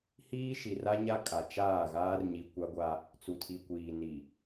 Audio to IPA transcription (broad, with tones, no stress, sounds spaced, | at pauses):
h iː˦ ʃ i˨ r a˦ ɲ a˦ kʼ a˨ t͡ʃ aː˦˨ ɣ aː˦ r ɲ i˨ kʷ a˦ ɡʷ a˦ | t͡s u˨ tʰ i˨ kʷ iː˨ n i˨